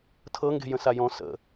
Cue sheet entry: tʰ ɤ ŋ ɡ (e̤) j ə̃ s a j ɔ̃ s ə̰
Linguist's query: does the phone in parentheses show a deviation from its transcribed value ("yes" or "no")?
no